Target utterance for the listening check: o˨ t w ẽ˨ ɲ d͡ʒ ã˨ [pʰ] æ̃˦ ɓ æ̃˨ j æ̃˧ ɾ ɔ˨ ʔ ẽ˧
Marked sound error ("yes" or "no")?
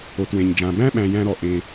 yes